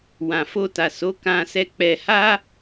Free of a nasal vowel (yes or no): no